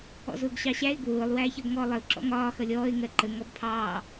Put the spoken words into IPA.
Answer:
ɔ̰ z ʊː ɡ ɕ ɑ ɕ æ ɪ̯ ɡ w ʊː lˠ w æː ç ʌ b ŋ ɔː lˠ ə ʊ̯ ǁ ɔ̰ ŋ ɒː x ʌ lʲ ɔː ɪ̯ ŋ ɜ ǃ ə ŋ ɔ b pʰ ɑː

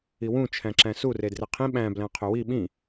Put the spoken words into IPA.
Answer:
i w ũ t͡ʃʰ æ̃ ǁ æ̃ s u r e d r e qʰ ĩ ɓ æ̃ b l æ̃ qʰ ø w i ɓ ĩ

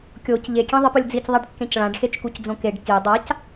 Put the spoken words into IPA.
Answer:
kʲ o c ʎ e kʲ ẽ ðˤ ɪ p ʊ lʲ d͡z i c ðˤ a ɖ kː ẽ c ɭ ã ɖ x e t͡ʃ k u c d͡z õ k e ɖ k i dˤ a c

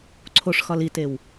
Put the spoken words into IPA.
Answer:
ǀʰ o ʂ x ɒ l i t e w

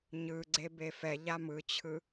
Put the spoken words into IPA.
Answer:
ɲ ɯ ɡ͡ǀ e b e f ɛ ʎ a m ɯ t͡ɕʰ ɯ

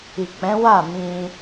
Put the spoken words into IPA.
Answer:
i˨ k͡p ɛ̃˨˦ w a˦˨ m ĩ˧

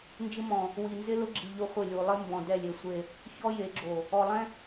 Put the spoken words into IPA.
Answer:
n d͡ʒ ɪ˦ m ɔ̃˨ | w i˨ n z ɪ˦ l ʊ˦ ɡ͡ǁ i˨ ʎ ʊ˦ χʷ ɪ˦˨ lʲ u˨ lˠ ɪ˦ m b ɔ̃˨ d ɛ˦˨ lʲ e˨ sʷ e˦˨ | ç ɔ˦ j e˨˦ ɡ͡ǁ o˨ | ɔ˨ lˠ ɛ̃˦

